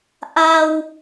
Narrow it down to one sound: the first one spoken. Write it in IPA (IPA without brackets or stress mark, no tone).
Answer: ʔ